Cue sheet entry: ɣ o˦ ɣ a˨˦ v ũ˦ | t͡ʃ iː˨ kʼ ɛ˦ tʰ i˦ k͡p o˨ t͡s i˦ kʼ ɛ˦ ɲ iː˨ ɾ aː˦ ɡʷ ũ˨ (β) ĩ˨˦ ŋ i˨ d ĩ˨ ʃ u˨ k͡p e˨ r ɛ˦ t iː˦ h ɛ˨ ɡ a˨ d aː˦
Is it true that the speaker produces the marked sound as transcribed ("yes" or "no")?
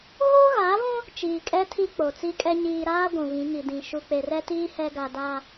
yes